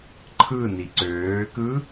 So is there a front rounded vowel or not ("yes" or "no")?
yes